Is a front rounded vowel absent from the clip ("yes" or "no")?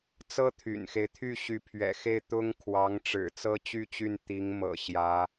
no